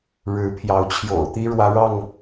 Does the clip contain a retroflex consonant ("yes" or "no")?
yes